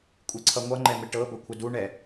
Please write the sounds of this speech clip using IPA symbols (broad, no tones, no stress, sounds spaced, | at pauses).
kʷʼ i ǀʰ ʌ ŋʷ ʌ ŋ͡ǃ ɛ m ɪ ʈ ɤ b ə kʷʰ ɪ d u ɳ ɛ